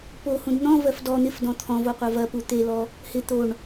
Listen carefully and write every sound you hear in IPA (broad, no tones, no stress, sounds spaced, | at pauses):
p o h ũ d n̪ ɔ̃ v ɜ f d ɔ n̪ ɪ f d ɔ̃ t̪ʰ ɔ̃ v o qʷ ɜ v ɐ p u t̪ e l ɔ | h ɪ t̪ o ɳ